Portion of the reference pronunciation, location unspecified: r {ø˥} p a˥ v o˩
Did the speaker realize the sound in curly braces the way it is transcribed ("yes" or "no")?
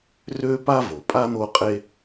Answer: yes